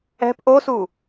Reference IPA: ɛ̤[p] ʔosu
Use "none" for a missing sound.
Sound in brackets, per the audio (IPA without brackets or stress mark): p